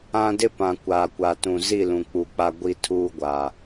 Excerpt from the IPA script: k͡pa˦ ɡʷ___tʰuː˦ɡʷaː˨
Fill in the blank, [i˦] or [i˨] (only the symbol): i˦